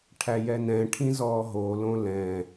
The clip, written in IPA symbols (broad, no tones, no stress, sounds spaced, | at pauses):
ʈʰ æ j ɛ n ɛ̃ ʈʰ ĩ z ɔː ɦ o l õ l ɛ̃